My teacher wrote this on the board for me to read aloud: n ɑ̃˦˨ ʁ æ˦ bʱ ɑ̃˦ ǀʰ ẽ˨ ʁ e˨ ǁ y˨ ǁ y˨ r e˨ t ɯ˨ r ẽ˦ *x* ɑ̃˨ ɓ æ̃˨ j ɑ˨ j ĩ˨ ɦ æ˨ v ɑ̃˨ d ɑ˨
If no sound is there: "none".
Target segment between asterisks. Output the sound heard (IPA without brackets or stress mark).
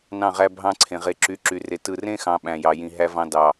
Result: x